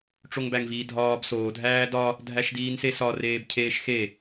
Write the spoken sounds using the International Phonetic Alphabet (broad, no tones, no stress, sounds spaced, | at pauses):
ʈ͡ʂ o ŋ b æ ŋ v iː dʱ ɒː b s oː dʱ æː d ɒ | dʱ æ ʃ d iː n s e s ɒ r eː b cʰ eː ʃ x e